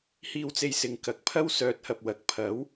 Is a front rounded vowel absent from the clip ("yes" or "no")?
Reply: no